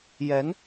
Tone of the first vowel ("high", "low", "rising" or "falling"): rising